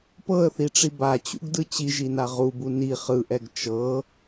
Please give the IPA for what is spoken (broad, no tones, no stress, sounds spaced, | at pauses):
p ɤ ə̯ θ i ʈ͡ʂ i b a t͡ɕ ṵ ɡ d ɯ t͡ɕ i ʒ i n a ʁ u b u n i χ ɯ ʔ ɛ ɡ t͡ʃ ɤ